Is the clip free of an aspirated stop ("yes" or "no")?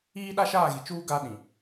yes